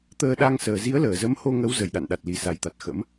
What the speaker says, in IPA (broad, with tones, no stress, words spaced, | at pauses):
t̪əː˧ɗa˧ŋsəː˨˩ zi˨˦ə̯ləː˧˩zə˨˦m ho˧ŋə˨˦w zə˧˩jɗa̰˧˨nɗa˨˩t̚ li˨˩sa˨˩jt̪a˨˩t̚xə̰˧˥m